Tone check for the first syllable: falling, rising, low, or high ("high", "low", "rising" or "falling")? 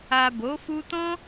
low